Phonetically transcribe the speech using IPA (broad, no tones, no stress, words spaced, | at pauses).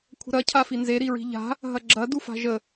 kʷʰə̤ɾɐ cʰafinze ɾiɹi̤ʎa̤ | ɦɐɡ͡ǁɐ dufa̤ʒə